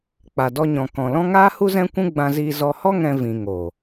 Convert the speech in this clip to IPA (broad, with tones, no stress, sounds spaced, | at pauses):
k͡p a˨ d ɔ˧ ɲ ɔ̃˨ k ɔ̃˨ l ɔ̃˦ ŋ aː˦ h u˦ z ɛ̃˦ kʷ ũ˦ ɡ͡b ã˧ z iː˧ z ɔ˧ h ɔ˦ ŋ ɛ̃˦ v ĩ˧ ŋ oː˨